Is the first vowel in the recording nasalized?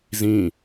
yes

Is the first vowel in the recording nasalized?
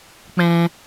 yes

